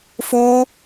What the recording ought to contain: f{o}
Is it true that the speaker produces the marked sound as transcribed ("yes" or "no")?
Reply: yes